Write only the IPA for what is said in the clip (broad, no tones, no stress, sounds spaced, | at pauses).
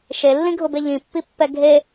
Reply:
ʃ e lː ĩ ɡʱ ʊ b e ʎ ĩ pː i pː ɛ ɡʱ e